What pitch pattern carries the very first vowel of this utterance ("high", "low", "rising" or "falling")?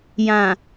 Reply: low